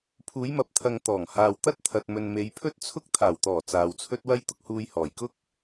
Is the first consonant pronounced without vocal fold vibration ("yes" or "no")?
yes